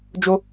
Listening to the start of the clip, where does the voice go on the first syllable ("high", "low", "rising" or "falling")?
high